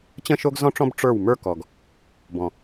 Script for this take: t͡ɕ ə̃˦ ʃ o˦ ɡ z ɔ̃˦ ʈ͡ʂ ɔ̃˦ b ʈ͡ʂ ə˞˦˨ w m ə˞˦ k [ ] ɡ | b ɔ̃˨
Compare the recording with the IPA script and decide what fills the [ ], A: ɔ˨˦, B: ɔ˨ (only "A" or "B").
B